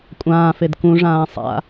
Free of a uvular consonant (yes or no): yes